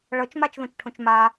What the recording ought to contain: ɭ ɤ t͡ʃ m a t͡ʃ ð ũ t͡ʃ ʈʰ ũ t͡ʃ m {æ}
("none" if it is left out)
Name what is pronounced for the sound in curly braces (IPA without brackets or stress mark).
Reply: a